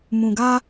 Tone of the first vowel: low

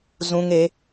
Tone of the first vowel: high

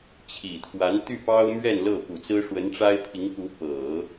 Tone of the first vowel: low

